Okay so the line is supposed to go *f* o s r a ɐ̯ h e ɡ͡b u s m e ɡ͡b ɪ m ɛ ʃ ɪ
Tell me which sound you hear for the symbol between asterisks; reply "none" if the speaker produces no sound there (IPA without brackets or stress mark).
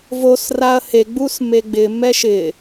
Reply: v